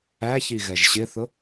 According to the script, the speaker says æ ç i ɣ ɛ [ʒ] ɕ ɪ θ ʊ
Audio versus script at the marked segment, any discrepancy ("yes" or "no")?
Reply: no